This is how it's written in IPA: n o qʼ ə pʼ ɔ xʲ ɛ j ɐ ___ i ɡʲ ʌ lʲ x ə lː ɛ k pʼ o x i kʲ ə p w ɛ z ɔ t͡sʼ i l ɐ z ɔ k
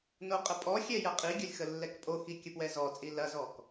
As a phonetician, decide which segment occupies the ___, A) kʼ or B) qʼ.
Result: B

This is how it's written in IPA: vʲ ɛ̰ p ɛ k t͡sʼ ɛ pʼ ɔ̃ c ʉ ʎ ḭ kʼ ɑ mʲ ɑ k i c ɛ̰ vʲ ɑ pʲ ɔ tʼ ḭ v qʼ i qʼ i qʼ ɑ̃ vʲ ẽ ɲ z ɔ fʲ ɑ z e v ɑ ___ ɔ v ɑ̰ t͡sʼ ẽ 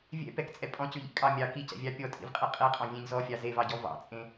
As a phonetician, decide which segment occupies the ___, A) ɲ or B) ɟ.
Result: B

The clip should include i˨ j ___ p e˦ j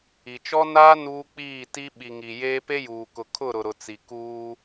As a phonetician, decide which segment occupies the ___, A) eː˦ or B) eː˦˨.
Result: A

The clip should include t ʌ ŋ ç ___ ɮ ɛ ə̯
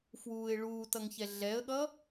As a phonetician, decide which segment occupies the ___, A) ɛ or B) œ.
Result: A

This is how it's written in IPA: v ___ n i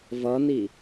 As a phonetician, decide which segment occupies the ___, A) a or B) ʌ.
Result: B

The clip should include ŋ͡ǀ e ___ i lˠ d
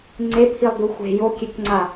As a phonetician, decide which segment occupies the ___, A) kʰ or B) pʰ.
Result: B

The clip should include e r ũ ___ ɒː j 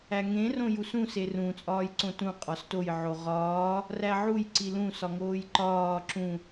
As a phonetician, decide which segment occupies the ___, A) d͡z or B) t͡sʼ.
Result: B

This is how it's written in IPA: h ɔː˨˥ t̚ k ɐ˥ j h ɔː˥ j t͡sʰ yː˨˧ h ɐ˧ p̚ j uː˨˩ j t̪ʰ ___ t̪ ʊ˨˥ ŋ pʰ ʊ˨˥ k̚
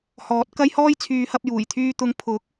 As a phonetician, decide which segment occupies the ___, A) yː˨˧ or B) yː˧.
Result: B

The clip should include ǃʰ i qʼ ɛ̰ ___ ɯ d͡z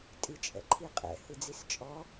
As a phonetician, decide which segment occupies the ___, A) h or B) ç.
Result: A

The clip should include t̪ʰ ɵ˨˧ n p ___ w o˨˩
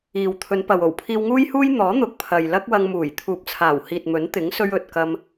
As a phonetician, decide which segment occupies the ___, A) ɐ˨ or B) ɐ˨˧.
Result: A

